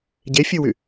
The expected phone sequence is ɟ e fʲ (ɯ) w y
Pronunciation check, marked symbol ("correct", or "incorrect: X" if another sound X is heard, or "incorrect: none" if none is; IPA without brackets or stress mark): correct